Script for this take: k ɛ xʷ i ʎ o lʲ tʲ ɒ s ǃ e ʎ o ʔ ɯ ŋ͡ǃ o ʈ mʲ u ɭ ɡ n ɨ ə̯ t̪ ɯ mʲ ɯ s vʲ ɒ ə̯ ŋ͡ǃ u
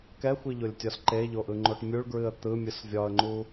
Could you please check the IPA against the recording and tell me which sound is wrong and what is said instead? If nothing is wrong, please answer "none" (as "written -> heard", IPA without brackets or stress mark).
n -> ɹ